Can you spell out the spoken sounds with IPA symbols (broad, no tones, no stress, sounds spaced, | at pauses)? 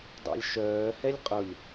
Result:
dˤ a̰ lʲ ʃ œː h ɛ lʲ qʼ ʊ lʲ